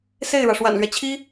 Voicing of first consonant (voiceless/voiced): voiceless